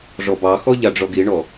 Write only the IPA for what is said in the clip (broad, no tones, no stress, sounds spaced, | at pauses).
ʐ ɔ b ɑ x ɔ ʎ a ɖ͡ʐ ɔ ɡ i ɳ ɔ